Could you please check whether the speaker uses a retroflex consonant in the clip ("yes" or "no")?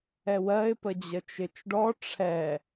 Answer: yes